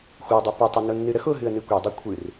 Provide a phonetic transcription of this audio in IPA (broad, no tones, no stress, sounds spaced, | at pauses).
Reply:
xʷ ɛ dˤ ɨ p ʌ tˤ ə n ʊ nː ɨ ɾ ə x ʊ ɦ ɨ ə̯ n ɨ kʷ i dˤ u kʷʰ ɨ r